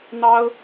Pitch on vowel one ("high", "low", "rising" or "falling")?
high